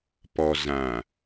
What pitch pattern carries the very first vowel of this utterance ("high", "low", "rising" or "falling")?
low